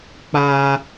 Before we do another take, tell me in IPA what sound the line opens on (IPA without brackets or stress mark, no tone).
k͡p